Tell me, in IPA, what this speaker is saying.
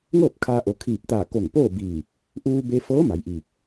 ŋ ɤː˥˨ p̚ kʰ aː˧ ʔ o˩˧ kʰ iː˧˩ p̚ t̪ aː˧˩ k o˧˩ ŋ p oː˥˨ b iː˧˩ | ʔ uː˧ b e˧ f ɤː˧˥ m a˩˧ j ʔ iː˧˩ k̚

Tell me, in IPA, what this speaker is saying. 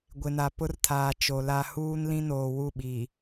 ɡʷ ɪ˨ n a˨ p ʊ˦ r tʰ aː˨ t͡ʃ o˨ l a˦ h uː˦ n l ĩ˦ n oː˨ w u˦˨ ɓ iː˨

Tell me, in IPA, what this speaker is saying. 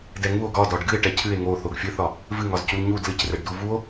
d ɛ ŋ u o̯ ɡ ɒ d ɒ ɖ ɡ ɨ e̯ ʈ ɛ cʰ ɨ e̯ ŋ o θ o ɡ fʲ ɨ θ ɒ | v ɨ ŋ ɒ z c u l ɲ u d l ɨ c r ɛ ɖ d u v u o̯

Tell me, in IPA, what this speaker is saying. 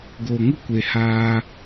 ɡ o˨ ŋ u˦ kʷ e˨ h aː˧

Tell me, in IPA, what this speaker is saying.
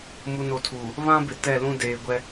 m u˨ n o˨ tʰ uː˨ | β ã˦ b ɪ˨ t ɛ˦˨ l ũ˦ d eː˨ ɡʷ ɛ˦

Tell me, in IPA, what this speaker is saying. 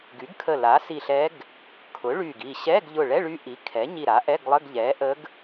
ɡ y˩˥ ɡ kʰ ə˧˩ l a˩˥ s i˧˩ ɬ ɛ˧˥ ɡ | kʰ ʊ˩˥ ɭ y˧˩ ɡ i˧˩ ɕ ɛ˧˥˧ ɡ ʎ ʊ˧˩ ɭ ɛ˧˥˧ ɭ y˧˥ ʔ i˩˥ kʰ ɛ˩˥ ɲ i˧˩ ɾ a˩˥ ʔ ɛ˧˥˧ ɡ lˠ ə˧˥˧ ɡ ʎ ɛ˩˥ ʔ ə˧˥ ɡ

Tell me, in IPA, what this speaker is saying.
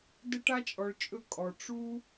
d ɘ˧ ʈ a˧ t͡ʃʼ ɔ˨ ɭ t͡ʃʼ ɵ˧ kʼ ɔ˨ ʈ͡ʂ u˦

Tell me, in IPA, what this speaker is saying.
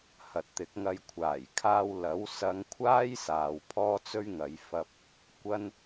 h ɐ˨ t̚ t̪ ɪ˨˥ k̚ ŋ ɐ˧ j kʷʰ aː˨˩ j kʰ aː˧ w l ɐ˨˥ w s ɐ˨˧ ŋ kʷʰ aː˥ j s aː˨ w pʰ ɔː˥ t͡s ɵ˥ ɥ ŋ ɐ˨˧ j f ɐ˧ p̚ | kʷ ɐ˧ n

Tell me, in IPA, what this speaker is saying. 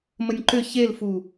m ə nʲ ǃ ʏ ç e l f u

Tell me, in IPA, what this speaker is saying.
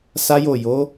s a˦ j o˦˨ j o˨˦

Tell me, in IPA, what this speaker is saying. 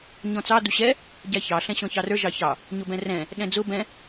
ɲ ɔ̃ t͡s ɑ d u ɕ ɛ | ɟ æ ç ɑ ɬ ɛ̃ ɕ ɔ̃ ç ɑ r ə˞ ʒ ɑ ç ɑ | ɲ ʊ b ɛ̃ r ɛ̃ | ɗ ɛ̃ d͡z ʊ b ɛ̃

